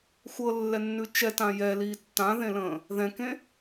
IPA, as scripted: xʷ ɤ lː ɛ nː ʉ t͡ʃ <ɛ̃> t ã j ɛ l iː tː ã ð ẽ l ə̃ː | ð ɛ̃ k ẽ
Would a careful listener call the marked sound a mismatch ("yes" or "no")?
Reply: yes